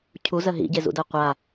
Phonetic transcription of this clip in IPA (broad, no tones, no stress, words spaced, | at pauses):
cʰuzɜ ɦḭɟezṵdɜ qʷa